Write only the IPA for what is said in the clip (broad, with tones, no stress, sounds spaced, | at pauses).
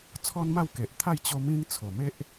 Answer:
t͡sʰ ɔ˦ n m a˥˧ w k e˨ ʔ t̪ʰ a˥˧ j t͡ɕ o˧ m ĩ˧ ŋ t͡sʰ o˨˩ m e˦ ʔ